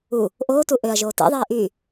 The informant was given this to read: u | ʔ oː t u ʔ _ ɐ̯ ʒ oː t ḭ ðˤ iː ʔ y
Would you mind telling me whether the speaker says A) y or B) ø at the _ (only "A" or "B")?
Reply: B